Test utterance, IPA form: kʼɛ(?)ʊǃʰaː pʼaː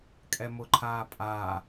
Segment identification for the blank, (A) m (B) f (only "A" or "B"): A